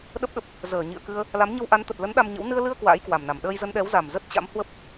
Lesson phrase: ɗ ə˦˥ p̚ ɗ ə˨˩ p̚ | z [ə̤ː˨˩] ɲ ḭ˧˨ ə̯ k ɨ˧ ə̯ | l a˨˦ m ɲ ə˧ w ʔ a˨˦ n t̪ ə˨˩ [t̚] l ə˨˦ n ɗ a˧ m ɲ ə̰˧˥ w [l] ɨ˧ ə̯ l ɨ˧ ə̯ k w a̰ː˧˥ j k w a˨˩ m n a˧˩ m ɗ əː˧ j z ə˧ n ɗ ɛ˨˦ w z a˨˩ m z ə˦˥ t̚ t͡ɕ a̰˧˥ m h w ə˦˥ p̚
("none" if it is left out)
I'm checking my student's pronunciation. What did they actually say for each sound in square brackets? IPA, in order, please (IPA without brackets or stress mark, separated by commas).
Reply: əː˧˩, t̚, n